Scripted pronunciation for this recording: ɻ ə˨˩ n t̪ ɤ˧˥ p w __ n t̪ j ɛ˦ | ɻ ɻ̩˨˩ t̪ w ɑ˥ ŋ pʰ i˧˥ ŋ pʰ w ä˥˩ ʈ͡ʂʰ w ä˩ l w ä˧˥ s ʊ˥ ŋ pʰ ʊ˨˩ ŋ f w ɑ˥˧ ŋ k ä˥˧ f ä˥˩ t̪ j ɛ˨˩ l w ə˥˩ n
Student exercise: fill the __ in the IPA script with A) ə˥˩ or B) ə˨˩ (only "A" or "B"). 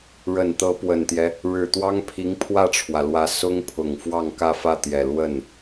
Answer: B